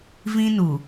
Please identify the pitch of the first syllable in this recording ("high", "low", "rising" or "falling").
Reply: high